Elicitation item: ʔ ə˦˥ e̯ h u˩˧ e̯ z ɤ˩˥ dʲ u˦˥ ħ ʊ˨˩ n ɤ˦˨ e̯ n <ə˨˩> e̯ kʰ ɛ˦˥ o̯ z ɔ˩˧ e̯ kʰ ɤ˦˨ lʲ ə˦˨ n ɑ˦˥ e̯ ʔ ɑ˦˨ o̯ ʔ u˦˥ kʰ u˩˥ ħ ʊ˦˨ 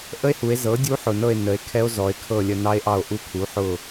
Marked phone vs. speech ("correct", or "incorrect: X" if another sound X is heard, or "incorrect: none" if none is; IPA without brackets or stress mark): incorrect: ə˩˧